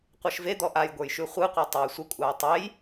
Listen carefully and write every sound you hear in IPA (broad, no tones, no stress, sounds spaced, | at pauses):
qʷ e ʃ v e d̪ ɔ ʔ a j ɡʷ ə˞ j ʃ ʉ χʷ ɯ qʷ e tˤ ɑ j sʷ ə kʷʼ ɑ j tˤ e j